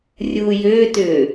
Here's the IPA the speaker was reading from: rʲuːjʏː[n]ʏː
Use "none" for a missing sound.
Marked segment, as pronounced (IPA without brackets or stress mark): t